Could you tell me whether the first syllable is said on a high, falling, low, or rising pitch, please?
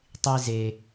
high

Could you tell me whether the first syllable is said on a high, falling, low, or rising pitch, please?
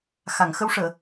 low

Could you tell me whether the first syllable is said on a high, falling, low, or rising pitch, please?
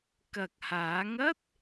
low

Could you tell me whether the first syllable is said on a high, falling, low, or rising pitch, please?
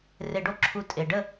low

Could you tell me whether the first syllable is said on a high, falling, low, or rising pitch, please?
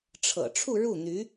low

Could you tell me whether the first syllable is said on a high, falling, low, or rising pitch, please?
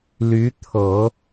rising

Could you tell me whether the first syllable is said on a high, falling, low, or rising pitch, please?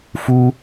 high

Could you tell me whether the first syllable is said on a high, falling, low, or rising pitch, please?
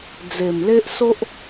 low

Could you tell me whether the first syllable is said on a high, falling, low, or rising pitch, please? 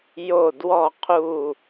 falling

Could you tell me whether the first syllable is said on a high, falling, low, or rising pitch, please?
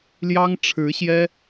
high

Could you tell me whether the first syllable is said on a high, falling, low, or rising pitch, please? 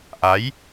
rising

